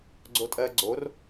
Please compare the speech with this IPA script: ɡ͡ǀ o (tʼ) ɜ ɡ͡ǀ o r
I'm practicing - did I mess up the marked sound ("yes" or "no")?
no